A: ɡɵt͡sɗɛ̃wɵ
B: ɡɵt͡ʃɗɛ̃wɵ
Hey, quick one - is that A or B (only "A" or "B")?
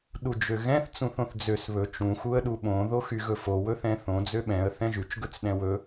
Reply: A